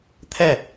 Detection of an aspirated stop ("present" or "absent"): present